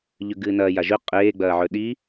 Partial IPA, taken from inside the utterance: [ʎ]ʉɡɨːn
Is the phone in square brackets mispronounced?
no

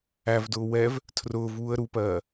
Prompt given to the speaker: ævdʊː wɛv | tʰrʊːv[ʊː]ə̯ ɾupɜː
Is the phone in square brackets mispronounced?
yes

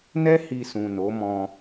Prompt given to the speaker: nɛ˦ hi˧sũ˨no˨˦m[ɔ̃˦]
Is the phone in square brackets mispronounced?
yes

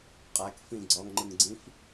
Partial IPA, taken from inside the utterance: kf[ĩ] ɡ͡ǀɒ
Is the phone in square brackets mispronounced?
no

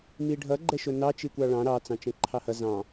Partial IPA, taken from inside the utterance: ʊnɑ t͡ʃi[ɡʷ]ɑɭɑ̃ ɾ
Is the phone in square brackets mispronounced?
yes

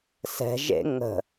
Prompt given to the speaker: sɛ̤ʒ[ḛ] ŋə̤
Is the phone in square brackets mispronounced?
no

